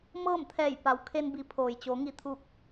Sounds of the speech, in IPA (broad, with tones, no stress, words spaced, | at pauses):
mɤː˥˨mt̪ʰɛː˧˩jpa˩w kʰe˧nbi˩˧ pʰoː˩jt͡ɕo˩˧ ŋi˧˩t̪ʰuː˧˩k̚